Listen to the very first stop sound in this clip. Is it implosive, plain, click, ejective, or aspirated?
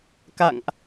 plain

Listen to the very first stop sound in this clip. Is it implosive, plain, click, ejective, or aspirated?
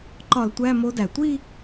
click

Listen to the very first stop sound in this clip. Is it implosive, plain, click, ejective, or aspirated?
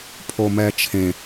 aspirated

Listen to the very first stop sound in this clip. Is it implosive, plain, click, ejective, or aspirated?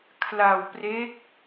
aspirated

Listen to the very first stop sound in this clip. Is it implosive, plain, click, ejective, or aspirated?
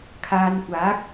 aspirated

